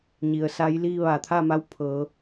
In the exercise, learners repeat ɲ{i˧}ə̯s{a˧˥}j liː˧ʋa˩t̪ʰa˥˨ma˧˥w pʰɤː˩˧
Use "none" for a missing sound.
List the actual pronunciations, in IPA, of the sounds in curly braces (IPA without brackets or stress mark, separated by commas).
i˩, a˧˥